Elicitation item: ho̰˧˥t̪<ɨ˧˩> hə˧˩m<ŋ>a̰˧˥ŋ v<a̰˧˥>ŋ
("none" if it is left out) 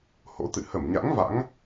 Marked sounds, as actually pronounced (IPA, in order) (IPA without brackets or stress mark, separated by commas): ɨ̰˧˨, ɲ, a̰˧˥